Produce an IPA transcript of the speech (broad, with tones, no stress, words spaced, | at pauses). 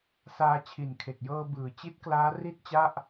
saː˧ t͡ɕʰi˨˩nkʰe˨˩k̚jɤː˧ bɯː˩˦t͡ɕi˦˥t̚klaː˦˥ ri˥˩t̚t͡ɕa˥˩ʔ